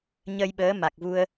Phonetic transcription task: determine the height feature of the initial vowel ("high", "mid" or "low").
mid